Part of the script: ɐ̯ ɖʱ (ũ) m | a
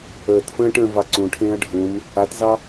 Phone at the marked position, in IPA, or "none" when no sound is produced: ũ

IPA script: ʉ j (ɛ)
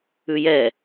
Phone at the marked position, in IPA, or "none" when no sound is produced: ɛ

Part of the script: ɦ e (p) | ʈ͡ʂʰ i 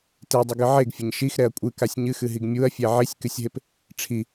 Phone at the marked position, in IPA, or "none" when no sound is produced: p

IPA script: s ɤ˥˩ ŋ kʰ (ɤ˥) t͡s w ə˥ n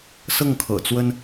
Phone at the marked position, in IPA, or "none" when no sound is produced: ɤ̰˨˩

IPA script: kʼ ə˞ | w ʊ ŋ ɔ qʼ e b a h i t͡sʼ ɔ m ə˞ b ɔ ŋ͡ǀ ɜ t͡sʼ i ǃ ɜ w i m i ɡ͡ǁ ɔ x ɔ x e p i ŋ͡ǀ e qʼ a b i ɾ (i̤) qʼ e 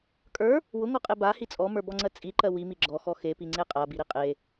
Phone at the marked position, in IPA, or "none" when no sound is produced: i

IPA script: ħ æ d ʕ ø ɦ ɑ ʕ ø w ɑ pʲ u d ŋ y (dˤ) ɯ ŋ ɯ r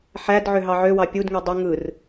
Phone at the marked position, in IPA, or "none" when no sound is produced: dˤ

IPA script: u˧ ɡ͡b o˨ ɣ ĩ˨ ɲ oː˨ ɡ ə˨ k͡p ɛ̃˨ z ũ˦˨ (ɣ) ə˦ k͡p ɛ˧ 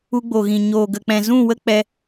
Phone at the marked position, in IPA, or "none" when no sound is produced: w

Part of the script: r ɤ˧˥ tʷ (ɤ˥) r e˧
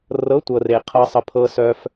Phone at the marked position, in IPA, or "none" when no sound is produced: ɤ˧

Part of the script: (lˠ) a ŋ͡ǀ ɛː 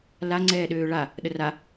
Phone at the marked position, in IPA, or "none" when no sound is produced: l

